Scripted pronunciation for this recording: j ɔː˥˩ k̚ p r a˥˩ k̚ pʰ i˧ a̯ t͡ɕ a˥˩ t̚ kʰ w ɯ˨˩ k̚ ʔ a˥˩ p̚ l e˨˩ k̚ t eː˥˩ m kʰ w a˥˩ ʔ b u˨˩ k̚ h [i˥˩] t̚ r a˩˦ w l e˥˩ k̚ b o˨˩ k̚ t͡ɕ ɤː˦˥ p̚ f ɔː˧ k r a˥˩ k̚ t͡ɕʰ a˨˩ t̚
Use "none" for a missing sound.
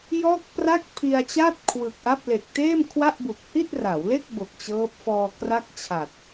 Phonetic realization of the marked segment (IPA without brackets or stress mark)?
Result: i˥˩